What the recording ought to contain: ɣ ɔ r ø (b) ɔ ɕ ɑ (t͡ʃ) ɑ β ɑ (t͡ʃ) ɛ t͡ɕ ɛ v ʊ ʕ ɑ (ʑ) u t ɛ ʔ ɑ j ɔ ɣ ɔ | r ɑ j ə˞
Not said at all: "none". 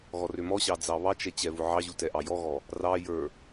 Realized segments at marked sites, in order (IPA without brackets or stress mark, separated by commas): m, d͡z, t͡ʃ, ʑ